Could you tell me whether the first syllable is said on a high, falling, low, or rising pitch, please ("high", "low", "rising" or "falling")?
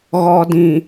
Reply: low